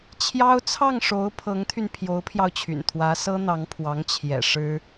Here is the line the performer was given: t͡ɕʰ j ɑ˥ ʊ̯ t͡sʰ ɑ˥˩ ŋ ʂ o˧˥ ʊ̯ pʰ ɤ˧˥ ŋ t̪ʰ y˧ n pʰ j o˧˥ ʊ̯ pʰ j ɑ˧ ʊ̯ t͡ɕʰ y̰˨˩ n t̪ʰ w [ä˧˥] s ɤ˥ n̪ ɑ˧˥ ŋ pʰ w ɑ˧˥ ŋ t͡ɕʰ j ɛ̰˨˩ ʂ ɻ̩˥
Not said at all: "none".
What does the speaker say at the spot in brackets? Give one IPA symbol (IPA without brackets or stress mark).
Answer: ä˧˥